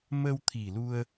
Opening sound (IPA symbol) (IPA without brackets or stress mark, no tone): m